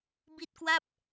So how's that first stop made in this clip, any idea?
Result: plain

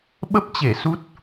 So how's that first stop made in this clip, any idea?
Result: implosive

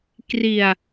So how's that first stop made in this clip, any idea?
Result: plain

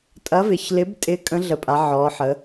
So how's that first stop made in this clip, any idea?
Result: ejective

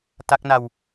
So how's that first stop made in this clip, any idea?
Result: plain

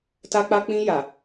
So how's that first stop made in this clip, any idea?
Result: plain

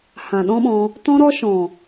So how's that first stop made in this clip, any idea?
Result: implosive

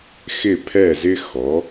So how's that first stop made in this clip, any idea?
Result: aspirated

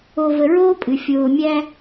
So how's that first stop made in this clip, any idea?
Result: ejective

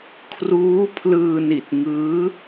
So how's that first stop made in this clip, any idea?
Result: aspirated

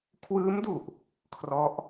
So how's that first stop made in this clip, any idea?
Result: aspirated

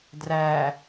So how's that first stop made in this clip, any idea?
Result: plain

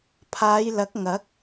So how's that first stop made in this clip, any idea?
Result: aspirated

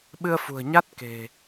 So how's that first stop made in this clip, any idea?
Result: implosive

